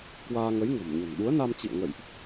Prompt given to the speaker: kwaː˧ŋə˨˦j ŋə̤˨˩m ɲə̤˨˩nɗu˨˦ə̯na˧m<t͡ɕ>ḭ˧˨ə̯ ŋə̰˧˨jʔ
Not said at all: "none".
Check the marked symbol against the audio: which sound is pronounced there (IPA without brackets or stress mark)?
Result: t͡ɕ